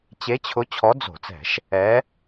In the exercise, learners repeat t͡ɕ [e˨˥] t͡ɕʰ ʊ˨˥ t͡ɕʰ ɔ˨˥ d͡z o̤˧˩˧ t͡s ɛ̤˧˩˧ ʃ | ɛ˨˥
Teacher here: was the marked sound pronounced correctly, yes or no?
yes